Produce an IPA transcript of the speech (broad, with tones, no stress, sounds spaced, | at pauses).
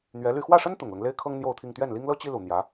n̪ ɥ ɛ˧˥ l y˥˧ x w ä˥˩ ʂ ə˥ n t̪ ʊ˨˩ ŋ l ʊ˦ ŋ l e˥ ɪ̯ kʰ ɤ˥ ŋ n̪ j o˥˧ ʊ̯ t̪ʰ i˥˧ ŋ t̪ ɥ ɛ˥˩ n l i˥ ŋ l ɤ˥ t͡ɕ i˥ l u˨˩ n̪ j ä˧˥